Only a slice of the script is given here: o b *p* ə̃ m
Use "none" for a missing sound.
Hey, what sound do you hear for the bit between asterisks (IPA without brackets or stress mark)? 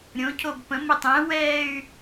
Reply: p